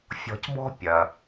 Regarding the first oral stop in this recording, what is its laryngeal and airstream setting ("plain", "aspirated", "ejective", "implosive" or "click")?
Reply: plain